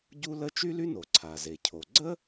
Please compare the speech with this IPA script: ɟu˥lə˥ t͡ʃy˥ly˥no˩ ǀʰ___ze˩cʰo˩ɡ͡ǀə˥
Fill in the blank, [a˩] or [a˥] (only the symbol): a˩